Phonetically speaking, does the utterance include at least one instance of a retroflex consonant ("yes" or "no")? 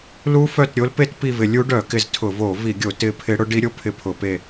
yes